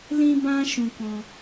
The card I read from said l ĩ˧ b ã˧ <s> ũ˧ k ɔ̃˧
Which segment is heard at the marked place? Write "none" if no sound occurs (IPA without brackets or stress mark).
ʃ